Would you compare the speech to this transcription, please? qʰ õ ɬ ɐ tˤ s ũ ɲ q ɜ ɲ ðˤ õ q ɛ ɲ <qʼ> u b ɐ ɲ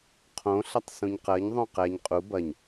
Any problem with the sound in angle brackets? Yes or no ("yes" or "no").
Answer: no